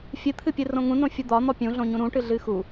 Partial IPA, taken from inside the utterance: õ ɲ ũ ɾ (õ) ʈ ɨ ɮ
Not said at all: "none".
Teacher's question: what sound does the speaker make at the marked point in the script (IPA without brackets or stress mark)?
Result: ũ